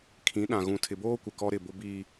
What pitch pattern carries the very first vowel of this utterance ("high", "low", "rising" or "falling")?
rising